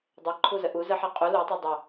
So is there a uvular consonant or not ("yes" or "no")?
yes